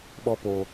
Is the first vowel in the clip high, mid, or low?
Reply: mid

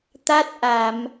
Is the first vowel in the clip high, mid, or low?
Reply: low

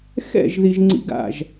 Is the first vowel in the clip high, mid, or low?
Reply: mid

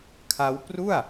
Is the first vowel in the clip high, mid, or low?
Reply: low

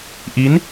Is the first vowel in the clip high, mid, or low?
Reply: high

